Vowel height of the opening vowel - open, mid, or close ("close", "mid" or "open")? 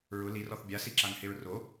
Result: close